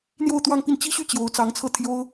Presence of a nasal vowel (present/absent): absent